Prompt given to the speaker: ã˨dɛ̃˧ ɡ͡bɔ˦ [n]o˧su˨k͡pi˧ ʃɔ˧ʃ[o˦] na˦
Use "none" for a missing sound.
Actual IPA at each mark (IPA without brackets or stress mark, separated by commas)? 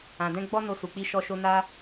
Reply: n, o˧